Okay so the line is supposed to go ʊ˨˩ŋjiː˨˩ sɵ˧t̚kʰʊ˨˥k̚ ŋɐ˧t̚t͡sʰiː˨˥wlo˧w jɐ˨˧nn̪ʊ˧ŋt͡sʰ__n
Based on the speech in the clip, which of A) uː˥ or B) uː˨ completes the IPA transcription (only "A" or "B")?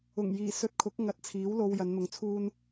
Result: A